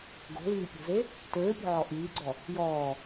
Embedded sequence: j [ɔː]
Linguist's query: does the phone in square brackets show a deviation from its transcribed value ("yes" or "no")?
no